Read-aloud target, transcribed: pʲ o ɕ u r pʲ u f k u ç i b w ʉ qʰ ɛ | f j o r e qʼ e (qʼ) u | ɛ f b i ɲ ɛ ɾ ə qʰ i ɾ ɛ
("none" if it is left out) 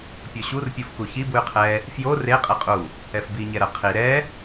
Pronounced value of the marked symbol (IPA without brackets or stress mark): qʼ